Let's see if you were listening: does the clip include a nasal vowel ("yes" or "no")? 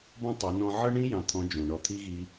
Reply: yes